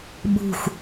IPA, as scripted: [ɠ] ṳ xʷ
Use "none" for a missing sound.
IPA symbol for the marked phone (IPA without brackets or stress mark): ɓ